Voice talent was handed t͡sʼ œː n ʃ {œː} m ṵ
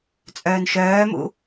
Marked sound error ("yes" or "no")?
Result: no